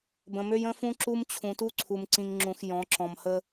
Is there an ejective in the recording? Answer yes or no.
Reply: no